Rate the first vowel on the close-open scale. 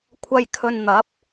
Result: open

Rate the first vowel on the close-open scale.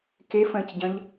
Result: mid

